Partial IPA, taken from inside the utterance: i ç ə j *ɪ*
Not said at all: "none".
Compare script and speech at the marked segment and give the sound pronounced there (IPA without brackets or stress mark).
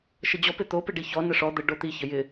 ɪ